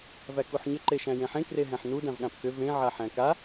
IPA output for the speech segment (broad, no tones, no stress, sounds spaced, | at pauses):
v æ k u ħ ɲ ʏ ǃ e ʃ æ̃ j ẽ ħ ẽ k r e ɦ æ̃ ħ n u d ã v ɠ ã p k ʏ v ẽ ʕ a ħ æ̃ k a